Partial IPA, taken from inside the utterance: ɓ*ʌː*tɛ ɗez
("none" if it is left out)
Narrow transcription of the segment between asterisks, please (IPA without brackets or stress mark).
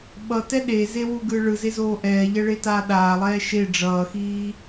ʌ